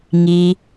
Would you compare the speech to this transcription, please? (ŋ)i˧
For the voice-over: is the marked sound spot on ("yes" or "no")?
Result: yes